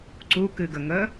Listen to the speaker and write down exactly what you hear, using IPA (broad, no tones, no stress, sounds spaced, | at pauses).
ǀ u k ɨ ɡ ə ŋ ə